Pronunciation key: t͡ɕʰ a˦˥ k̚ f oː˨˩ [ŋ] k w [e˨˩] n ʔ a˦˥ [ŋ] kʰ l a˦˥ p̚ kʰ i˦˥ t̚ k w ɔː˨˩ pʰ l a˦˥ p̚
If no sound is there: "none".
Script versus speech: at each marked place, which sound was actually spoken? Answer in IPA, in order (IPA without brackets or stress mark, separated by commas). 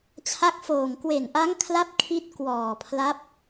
ŋ, e˨˩, ŋ